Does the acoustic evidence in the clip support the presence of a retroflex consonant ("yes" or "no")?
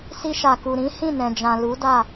no